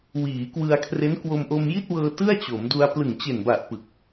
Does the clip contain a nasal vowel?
no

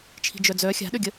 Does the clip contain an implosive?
yes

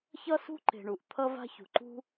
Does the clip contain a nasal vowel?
no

